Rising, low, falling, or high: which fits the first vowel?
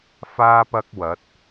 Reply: high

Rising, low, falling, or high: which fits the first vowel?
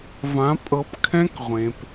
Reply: rising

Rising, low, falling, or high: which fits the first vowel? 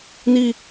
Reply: high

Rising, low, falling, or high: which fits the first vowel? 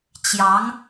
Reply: rising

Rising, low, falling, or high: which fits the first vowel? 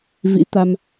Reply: rising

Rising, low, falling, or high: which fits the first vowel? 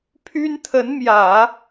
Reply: high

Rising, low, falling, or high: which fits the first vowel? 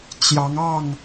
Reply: rising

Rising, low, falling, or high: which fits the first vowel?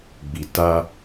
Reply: low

